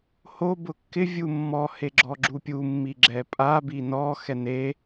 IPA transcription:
ho bʊkːɪ vʲumːɔ heɡ͡ǁɔɡ͡ǁupʲu mːiɡ͡ǁɛpʼa binɔ xɛne

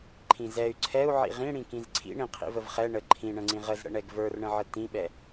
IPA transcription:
ǃʰĩzɛy̯ ǀʰɛu̯ʕḭ ʁĩɽĩkĩz ǀʰḭɳĩ qʰḭvəvχɛ ɳə ǃʰĩɳə̃ŋ͡ǀĩ ʁəzɽə̰ɳɛɡ və˞rɳə̃ʕə tĩɓɛ

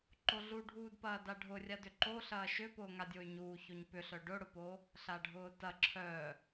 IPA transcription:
ǃoɮuɖʱuːdpɐː daɖʱʊrʲadʏ ǃoɬɐː ʃʏpʊːŋadʲoy̯ ɲuːçoɲ pʏɬœ ɖʊɽʊpo | ɬaɖʱʊːtɐ ǁʰœ

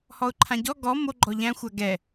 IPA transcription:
hɔʊ̯ǃʰãɟɔ ɡɔ mo ɡ͡ǃɔʎæ̃ xʷaɡɛ

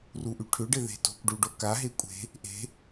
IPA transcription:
ruʔyʈʰʏɖɪ ðe̤to̤kʷɖu ɖokaɦe kʷʼe̤ | ʔe̤

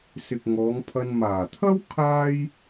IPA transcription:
sɪ˨k̚ŋɔː˨˧ŋpʰɐ˧n maː˨˩t̪ʰɐ˥w kʰaː˥j

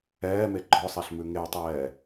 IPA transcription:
ɛːme ɡ͡ǃɔsˤɛɬmʉ ŋewtˤɛː

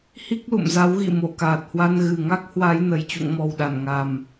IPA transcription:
hi˦˥k̚lṵ˧˨mza˨˦wɣḭ˧˨ mo˧˩kaː˨˩t̚hwa˧n ɣɨ˨˩ŋa˦˥k̚ hwa˨˦jnə˨˩j t͡ɕṵ˧˨ŋmɔ˨˩w ɗa˧˩nŋa˨˩m

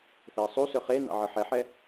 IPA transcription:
θeɐ̯sˤusɵ χe nɑ̰ʕɤħɛħɛ

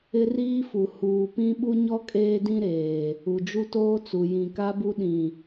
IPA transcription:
ɪ˦riː˦fu˨ huː˨pĩ˦ɓu˦ɲɔ˦ kʼeː˦dĩ˦ɾeː˨ | u˨d͡ʒu˦toː˦t͡su˨ jĩ˨ka˦bu˦ɗĩ˨

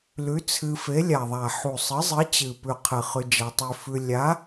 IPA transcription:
lʉ˨˥t͡sʰɨ˧ fe˨˥lʲa˨˩ðˤa˨˩ ħu˨˩sˤɨ˨˥zˤɨ˨˥ t͡ɕɨ˨˩pʉ˨˩qʰɨ˨˩ χʉ˧d͡ʒa˧tˤʉ˧ fʉ˧ lʲa˨˥

